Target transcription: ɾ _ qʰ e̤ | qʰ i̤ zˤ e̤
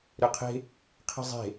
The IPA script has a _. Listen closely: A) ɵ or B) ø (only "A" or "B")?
B